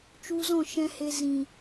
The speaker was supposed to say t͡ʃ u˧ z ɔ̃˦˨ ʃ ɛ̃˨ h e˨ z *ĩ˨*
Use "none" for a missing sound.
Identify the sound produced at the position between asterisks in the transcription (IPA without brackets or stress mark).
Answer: ĩ˨